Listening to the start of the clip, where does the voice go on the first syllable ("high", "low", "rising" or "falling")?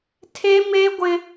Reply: high